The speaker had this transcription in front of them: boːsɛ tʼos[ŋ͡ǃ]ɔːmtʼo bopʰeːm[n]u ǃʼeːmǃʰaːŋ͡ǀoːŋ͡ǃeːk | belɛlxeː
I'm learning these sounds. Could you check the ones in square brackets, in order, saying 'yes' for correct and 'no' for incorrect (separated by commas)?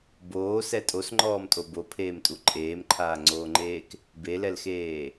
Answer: yes, no